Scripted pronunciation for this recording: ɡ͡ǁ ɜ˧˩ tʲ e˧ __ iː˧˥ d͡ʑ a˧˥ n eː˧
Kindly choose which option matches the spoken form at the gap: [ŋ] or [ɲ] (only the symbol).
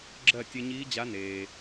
ɲ